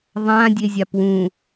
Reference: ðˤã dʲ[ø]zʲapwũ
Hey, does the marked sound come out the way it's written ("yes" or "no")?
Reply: no